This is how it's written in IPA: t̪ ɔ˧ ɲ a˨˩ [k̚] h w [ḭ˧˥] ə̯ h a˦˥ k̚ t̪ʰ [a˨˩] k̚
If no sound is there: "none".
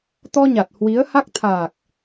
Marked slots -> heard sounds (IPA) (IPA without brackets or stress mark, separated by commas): t̚, i˨˦, aː˨˩